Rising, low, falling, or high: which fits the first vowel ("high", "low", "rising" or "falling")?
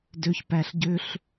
low